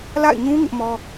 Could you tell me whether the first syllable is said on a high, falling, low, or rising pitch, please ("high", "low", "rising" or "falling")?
falling